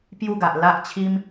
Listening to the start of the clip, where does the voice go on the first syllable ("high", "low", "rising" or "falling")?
falling